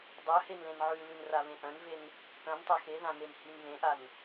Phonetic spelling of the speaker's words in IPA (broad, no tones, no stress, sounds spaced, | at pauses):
dˤ œ h e n l ẽ n ʕ ʉ l ʉ n r a β ẽ ʔ œ̃ n v e n | k œ̃ n tˤ œ x e ð ã n e n h i n β ẽ ʔ a n